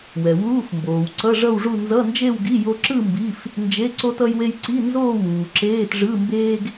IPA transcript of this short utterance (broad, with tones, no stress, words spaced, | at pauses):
wɛ˩wuː˧˥˧fmboː˩w ǀʌ˧˥˧ʐʌ˥˧wʐu˥˧ nzʌ˧˥˧nd͡ʒe˥˧wɡi˧˥˧ jo˥ ǁɯ˥˧ mbi˧˥˧f | nd͡ʒe˧˥˧ ǀo˥t ʌ˥jwe˥j ǀi˧˥˧nzoː˥˧ wuː˩ǁeː˧˥˧tʐɯ˧˥˧mbeː˥ɡ